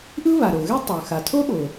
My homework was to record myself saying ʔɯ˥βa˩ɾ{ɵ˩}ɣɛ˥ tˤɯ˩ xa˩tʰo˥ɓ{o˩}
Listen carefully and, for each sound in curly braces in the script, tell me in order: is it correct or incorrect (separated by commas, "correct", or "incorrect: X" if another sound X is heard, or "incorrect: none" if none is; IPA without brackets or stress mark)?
incorrect: o˩, correct